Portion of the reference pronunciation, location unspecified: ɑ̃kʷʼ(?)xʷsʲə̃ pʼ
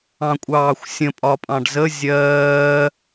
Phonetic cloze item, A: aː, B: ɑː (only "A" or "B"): B